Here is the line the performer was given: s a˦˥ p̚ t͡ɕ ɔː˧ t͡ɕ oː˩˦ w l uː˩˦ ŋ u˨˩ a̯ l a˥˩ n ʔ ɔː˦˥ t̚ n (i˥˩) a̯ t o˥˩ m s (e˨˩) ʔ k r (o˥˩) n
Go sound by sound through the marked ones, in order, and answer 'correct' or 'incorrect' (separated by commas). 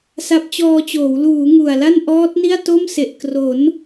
correct, correct, incorrect